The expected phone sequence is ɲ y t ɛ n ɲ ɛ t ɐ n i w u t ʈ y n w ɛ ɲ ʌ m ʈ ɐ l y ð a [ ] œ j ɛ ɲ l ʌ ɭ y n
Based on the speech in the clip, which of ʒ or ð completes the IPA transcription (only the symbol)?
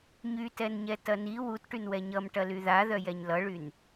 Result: ð